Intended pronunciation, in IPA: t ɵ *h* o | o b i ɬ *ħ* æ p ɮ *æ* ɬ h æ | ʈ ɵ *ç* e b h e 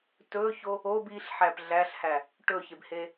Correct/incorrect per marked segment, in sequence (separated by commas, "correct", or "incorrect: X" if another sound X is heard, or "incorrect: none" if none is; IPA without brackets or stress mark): incorrect: ç, correct, correct, correct